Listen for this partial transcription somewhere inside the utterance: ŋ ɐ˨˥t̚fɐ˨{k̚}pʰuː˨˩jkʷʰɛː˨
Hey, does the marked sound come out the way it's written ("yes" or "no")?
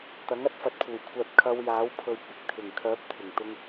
no